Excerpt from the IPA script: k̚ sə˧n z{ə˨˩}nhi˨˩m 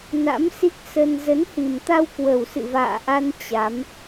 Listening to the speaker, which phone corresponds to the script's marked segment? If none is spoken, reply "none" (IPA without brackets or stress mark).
ə˨˦